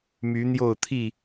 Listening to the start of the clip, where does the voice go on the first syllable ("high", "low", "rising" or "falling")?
rising